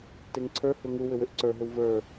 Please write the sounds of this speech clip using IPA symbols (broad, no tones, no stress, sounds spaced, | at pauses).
t e ŋ ǀʰ ə˞ h ʏ ŋ u w ʏ w ʏ ʔ ǀ ə˞ ɦ ʏ w v ə˞